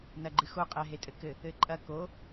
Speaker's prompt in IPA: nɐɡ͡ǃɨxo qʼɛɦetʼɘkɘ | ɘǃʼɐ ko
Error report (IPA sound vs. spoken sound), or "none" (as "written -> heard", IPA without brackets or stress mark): none